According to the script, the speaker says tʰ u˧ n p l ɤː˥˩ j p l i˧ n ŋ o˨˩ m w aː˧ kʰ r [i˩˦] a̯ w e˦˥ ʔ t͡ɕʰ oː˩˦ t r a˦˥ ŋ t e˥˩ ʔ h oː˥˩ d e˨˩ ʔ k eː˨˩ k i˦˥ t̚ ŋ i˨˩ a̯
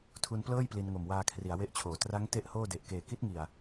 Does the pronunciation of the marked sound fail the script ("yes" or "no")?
no